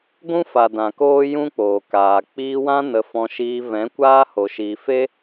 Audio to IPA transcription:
ɡʷ ũ˦ f a˨ d ã˨ k oː˦ j ũ˦ k͡p oː˨ k aː˨ k͡p iː˧ w ã˦ n ə˧ f ɔ̃˧ ʃ iː˧ v ɛ̃˨˦ kʷ aː˦ h o˨ ʃ i˨ f e˦

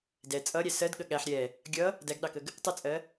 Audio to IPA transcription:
d ɛ t͡sʼ ʌ ɾʲ æ s ɜ d ɠ ə ɠ æ ħ ɾʲ ɛ | ɡʲ ʌ | d æ ɡ ɗ ɑ k ə ɡ | tˤ ə t͡sʼ ɜ

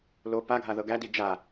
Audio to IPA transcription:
l o p a ɡʱ a ð ɤ ɡ æ d i d͡ʒ a

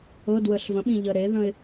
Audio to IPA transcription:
ɤ d w ə ɬ v ə̃ ɓ ĩ ʎ ə ɾ e ð ə̃ ɪ̯

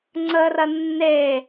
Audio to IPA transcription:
ŋ͡ǀ ə r ɐ nː e

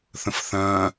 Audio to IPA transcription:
θ ə̃ f θ ɐ̃ː

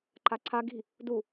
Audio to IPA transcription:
ǃ a ǀʰ a ɡ i̤ | d u

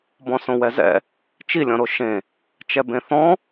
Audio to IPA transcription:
b ɔ̃ s õ w ɛ z ɛ̰ | t͡ʃ i lʲ ɔ̃ ɾ o ʃ ẽ | t͡ʃ ɛ b ẽ θ ɔ̃

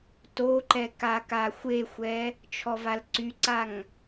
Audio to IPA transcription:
t o ǃ ɛ k a k a xʷ e xʷ ɛ | t͡ʃʰ ɔ v a l ǀ y ǀ a ŋ

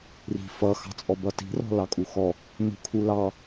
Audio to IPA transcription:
r i̤ f ʌ x ɑ̤ t͡sʼ ɔ b ʌ t i̤ r ɔ̤ l ɑ kʼ u x ɔ | n ṳ kʰ u l ɑ

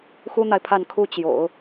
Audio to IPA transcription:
x u˥ n̪ a˨ ɪ̯ pʰ a˥˧ n kʰ u˥˩ t͡ɕ j o̰˨˩˦ ʊ̯

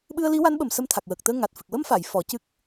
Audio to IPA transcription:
ɓ ɨ˧ ə̯ l i˧˥ w a˧˥ n ɓ ə˨˩ m s ə˧ m t̪ʰ a˨˩ k̚ w əː˨˩ k̚ t̪ əː˧ ŋ a˨˩ t̚ f ɨ˨˩ k̚ w ə˧ m f a˨˩˨ j f ɔ˨˩˦ c ɨ˦˥ k̚

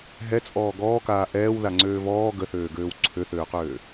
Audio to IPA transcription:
ɦ ɛ t͡sʼ ɔː ɡ ɔː k aː ʔ ɛː w ð a ŋ͡ǀ øː v ɔː ɡ ə θ øː ɡ øː w ǀʰ ø θ øː q øː

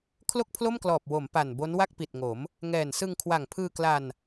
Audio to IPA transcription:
kʰ l o˥˩ k̚ pʰ l o˥˩ m k l ɔː˨˩ p̚ w o˩˦ m p a˨˩ n b o˦˥ n w a˥˩ k̚ p i˨˩ t̚ ŋ o˩˦ m | ŋ ɛː˨˩ n s ɯ˧ ŋ kʰ w a˨˩ ŋ pʰ ɯː˧ k l a˧ n

